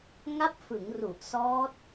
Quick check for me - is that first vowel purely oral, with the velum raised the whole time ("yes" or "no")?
yes